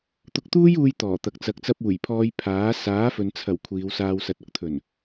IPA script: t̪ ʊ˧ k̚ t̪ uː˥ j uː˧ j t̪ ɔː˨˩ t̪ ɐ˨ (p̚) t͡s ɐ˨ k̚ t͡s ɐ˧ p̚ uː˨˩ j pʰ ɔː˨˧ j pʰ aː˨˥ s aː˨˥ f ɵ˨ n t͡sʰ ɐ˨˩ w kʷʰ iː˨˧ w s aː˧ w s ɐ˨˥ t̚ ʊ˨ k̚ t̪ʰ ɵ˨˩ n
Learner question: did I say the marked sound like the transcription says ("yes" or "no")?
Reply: no